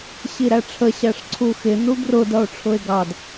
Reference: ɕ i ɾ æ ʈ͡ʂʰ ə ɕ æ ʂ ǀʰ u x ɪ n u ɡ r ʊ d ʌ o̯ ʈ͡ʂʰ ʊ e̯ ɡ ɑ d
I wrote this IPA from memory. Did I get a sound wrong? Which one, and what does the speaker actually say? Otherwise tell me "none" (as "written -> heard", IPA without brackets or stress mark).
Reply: none